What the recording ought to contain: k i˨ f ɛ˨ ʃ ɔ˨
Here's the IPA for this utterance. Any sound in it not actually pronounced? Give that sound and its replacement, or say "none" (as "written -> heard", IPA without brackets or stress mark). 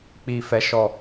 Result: k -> k͡p